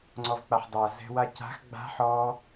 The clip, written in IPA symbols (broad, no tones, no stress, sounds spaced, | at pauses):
ŋ͡ǀ ɔ v k͡p a ħ dˤ a z ɛ̤ w a c a̤ x ɡ͡b a̤ ħ ɔ